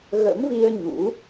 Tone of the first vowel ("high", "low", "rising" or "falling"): rising